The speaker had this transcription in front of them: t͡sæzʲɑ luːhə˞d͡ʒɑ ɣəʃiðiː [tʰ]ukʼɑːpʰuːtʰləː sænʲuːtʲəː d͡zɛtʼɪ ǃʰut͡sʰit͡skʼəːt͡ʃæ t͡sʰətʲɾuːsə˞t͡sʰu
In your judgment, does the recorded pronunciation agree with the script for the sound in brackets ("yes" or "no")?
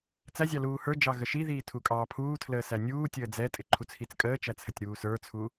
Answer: yes